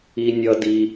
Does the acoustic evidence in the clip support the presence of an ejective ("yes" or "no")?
no